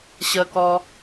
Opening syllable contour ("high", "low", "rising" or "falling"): low